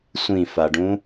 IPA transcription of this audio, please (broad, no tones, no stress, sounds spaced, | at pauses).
sʷ ĩ f a ɖ ũ